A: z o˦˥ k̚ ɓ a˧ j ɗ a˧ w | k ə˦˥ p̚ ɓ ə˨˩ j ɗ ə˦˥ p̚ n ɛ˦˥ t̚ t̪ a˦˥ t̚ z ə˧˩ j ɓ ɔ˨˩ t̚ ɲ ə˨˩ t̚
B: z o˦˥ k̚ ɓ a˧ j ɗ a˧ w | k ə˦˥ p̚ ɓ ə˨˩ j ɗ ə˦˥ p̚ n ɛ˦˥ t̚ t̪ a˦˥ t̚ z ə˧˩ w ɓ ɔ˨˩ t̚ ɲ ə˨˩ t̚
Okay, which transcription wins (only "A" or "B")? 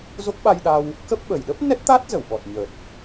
B